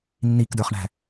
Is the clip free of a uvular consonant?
no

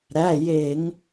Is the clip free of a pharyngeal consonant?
yes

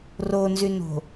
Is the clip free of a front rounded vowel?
no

